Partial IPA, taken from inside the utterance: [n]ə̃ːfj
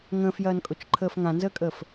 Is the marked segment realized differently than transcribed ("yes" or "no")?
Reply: yes